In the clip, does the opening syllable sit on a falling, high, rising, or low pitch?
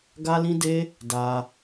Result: high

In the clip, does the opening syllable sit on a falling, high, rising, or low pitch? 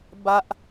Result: high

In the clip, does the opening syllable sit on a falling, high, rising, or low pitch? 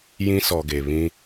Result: high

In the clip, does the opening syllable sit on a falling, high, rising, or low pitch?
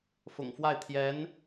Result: low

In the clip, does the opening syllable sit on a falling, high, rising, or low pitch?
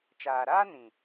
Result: low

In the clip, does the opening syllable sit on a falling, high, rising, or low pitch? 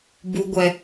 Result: low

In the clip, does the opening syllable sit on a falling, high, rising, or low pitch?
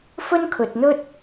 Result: high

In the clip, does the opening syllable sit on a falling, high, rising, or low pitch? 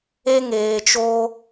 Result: high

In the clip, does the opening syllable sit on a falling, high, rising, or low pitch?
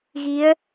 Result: rising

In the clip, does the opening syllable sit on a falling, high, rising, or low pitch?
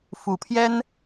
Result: low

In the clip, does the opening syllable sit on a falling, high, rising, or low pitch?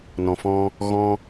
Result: low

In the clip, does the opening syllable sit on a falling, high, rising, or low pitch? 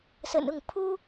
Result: low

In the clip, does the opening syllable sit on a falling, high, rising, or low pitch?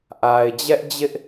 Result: low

